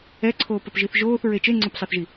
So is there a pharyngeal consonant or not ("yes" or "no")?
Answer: no